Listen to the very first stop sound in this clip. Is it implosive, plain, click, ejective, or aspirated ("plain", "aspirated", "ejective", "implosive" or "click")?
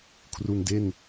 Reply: aspirated